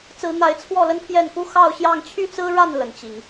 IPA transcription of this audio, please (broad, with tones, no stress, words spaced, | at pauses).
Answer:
t͡sɹ̩˨˦n̪a˨˦ɪ̯t͡sʰwɔ˥˨ lə˦npʰjɛ˥˨n ku˦xɑ˥˨ʊ̯ɕjɑ˥˨ŋ t͡ɕʰy˦t͡sɹ̩˦ɻa˥˨n lə˨˩n t͡ɕi˨˦ŋ